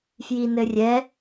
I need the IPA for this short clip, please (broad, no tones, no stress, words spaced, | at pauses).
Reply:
fjinɘrʲɛ